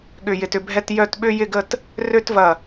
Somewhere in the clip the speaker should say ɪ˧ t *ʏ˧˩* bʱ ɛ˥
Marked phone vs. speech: incorrect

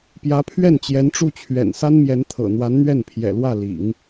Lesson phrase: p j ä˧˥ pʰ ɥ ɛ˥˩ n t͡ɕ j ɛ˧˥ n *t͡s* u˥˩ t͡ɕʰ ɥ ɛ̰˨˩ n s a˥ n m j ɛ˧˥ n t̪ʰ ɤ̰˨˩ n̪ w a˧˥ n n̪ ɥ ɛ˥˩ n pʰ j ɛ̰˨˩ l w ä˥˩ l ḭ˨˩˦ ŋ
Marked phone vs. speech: incorrect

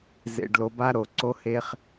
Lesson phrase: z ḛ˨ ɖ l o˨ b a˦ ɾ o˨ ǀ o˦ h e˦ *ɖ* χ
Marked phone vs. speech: incorrect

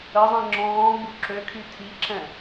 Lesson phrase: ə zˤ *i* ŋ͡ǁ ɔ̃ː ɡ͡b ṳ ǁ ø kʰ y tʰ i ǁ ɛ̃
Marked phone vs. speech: incorrect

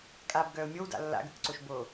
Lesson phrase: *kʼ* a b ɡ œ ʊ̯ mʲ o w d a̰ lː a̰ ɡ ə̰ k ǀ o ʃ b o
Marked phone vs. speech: correct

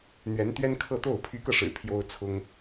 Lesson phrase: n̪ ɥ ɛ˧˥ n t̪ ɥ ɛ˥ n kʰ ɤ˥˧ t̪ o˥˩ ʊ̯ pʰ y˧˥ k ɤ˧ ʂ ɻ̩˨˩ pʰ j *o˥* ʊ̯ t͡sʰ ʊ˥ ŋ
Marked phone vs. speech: correct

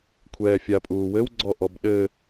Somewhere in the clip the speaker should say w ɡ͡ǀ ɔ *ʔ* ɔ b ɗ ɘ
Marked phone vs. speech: correct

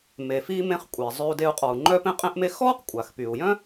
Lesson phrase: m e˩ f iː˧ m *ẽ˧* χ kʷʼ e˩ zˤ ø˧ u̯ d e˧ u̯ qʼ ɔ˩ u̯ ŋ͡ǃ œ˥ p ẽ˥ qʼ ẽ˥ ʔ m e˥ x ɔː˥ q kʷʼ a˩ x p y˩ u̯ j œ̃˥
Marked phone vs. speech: correct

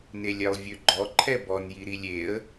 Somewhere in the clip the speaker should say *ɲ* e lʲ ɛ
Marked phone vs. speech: incorrect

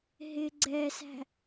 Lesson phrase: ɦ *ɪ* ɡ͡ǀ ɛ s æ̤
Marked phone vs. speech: correct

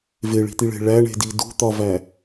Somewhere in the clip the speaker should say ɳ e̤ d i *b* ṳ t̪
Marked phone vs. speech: incorrect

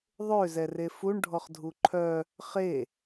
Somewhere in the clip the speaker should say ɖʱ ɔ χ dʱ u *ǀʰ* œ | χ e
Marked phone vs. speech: incorrect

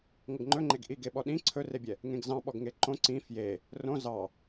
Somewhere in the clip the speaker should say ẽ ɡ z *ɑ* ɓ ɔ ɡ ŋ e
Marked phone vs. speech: incorrect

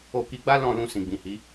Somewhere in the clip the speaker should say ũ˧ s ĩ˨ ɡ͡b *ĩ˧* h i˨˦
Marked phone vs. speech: incorrect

